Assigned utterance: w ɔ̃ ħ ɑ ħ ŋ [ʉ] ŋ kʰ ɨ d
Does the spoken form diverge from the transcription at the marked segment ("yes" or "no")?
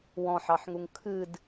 yes